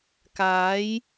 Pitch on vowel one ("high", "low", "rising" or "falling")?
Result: rising